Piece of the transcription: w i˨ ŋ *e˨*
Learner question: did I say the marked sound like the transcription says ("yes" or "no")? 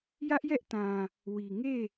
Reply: no